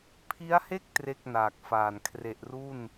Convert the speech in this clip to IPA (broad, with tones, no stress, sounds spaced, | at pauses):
pʰ i˦˥ a̯ h e˥˩ k̚ t r e˥˩ k̚ n aː˨˩ k̚ f aː˨˩ n kʰ r e˨˩ ʔ r u˥˩ n